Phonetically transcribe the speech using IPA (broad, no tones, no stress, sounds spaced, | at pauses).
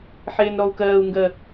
ħ eː n ɾ ɔ u̯ k ɜː u̯ ŋ ɡ ɜ